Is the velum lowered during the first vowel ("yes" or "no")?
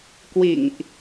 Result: no